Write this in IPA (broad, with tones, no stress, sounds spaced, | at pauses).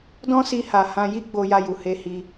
d ɔ̃˦ s i˧ h a˨ h ã˧ j i˦ ɡ͡b o˧ j a˧ j u˨ h e˧ h i˧